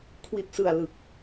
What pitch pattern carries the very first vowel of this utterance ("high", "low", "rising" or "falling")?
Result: low